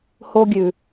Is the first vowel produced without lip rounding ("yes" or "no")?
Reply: no